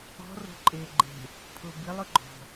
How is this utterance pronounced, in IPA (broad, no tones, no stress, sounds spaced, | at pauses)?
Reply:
ɔ̤ r o̤ ǃʼ e ɡ͡ǃ e̤ | pʰ ʊ b i lˠ ʊ ɡ͡ǃ ɔ̤